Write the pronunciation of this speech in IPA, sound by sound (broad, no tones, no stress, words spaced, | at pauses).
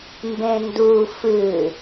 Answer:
mbẽndu fɨ